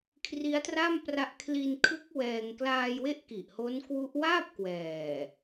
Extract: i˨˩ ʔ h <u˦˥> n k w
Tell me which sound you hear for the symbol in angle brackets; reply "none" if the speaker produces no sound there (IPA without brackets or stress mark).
o˦˥